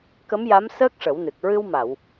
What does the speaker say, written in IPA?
k ə˧˥ m j a˧˥ m s əː˦˥ k̚ ʂ ə˨˩˦ w n ɨ˨˩ k̚ ɹ ɨ˧ w m a˨˩˨ w

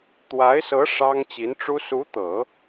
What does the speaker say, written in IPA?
t̪ w a˧˥ ɪ̯ s ɤ˧˥ ʂ ɑ˥ ŋ t͡ɕ i˧˥ n ʈ͡ʂ u˥ s u˧˥ t̪ ɤ˨˩˦

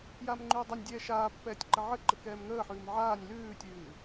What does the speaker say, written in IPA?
j aː m ŋ͡ǃ ʉː dˤ ɛ nʲ dʲ ɛː ʃ aː pː ɛː tʲ ǃ ə ʕ ə ǃ ə k ɛː m ŋ əː ħ ʉː m ʕ aː nʲ l ʉː tʲ ʉː

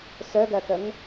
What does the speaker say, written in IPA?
s œ ɡ ɜ k ə ŋ

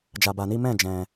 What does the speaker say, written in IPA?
d͡ʒ a˧ b a˧ n i˦ m ɛ̃˦˨ d͡ʒ ɛ̃˧

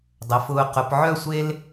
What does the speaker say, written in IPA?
dˤ ə˩˧ f ʊː˧ q ʊ˩˧ p ʕ œ˥˧ sʷ e˥ l

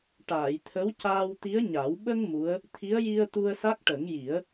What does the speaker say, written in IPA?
ʈ aː˨˩˨ j t̪ʰ ə˧˥ w c aː˧ w t̪ i˧˥ ə̯ ɲ a˨˩˦ w ɓ ə˧ ŋ m u˧˥ ə̯ | t̪ʰ i˧˥ ə̯ j i˧ ə̯ t̪ u˧ ə̯ s a˦˥ k̚ ʈ ə˨˩˦ ŋ j i˨˩˦ ə̯

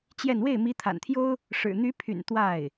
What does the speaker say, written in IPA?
t͡ɕ j ɛ˥˧ n w e˥˩ ɪ̯ m i˧˥ t̪ʰ a̰˨˩ n t̪ʰ j o˥ ʊ̯ | ʂ ɻ̩˨˩ n̪ y˧˥ pʰ y̰˨˩ n t̪ w a˥˩ ɪ̯

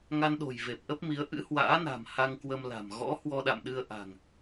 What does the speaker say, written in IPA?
ŋ a˧ n ɗ o̤˨˩ j v e˨˩ p̚ ʔ ə˦˥ p̚ m i˨˦ ə̯ ʔ ɨ̰˧˥ h w a̰ː˧˥ n a̤˨˩ m h a˧ ŋ k w ə˧ m l a̤˨˩ m ɣ ɔ̰˧˥ h w ɔ˧ ɗ a̰˧˨ m ɗ ɨ˧ ə̯ ʔ a̤˨˩ ŋ

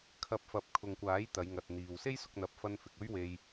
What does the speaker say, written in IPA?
kʰ ɐ˨˥ p̚ f ɐ˨ p̚ kʰ ʊ˨ ŋ kʷ aː˨˥ j t̪ ɐ˨˧ j ŋ ɐ˨ t̚ n̪ iː˨ w s e˥ j s ʊ˧ k̚ n̪ ɐ˨˥ p̚ f ɐ˧ n f ɪ˨ k̚ ɵ˥ ɥ w e˧ j

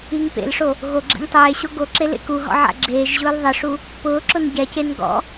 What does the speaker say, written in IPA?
i ŋ p ḛ l ʂ o | ɣ o ɡ͡ǁ ḛ ŋ tˤ eː ɕ o ɡ o ǁ e l ḛ k u ɦ ɔ̰ ʕ a̰ ɡ͡ǁ eː ʒ ʑ ʊː l ðˤ ɪ ʂ u | p ʊː ǁ ʊ n ɟ ɛ c e n ɡ ɔ̰

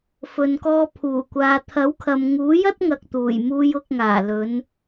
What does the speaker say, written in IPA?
f ɵ˨ n k ɔː˧ pʰ uː˨˩ kʷ aː˨ t̪ʰ ɐ˨˥ w kʰ ɐ˨ m ŋ uː˨˥ j ɐ˥ t̚ ŋ ɐ˨ k̚ t̪ uː˨˩ j m uː˧ j ʊ˧ k̚ ŋ aː˨˩ l ɵ˨˧ n

